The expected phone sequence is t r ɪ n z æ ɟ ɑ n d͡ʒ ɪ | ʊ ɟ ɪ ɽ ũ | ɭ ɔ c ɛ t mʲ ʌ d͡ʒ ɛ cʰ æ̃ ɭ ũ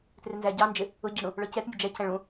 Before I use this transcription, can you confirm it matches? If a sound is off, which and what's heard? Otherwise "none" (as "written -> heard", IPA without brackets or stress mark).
none